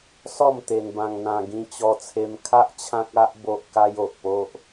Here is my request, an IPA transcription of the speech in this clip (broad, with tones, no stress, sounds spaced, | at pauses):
s ɔ˥˧ m t̪ e˧ n b ã˧ ŋ n̪ ã˧ ɡ ĩ˦ t͡ɕ ɔ˦ t͡sʰ e˦ m kʰ a˦ ʔ t͡ɕʰ ã˦ k̚ a˦ ʔ b o˦ ʔ k a˦ j o˨ ʔ p o˦ ʔ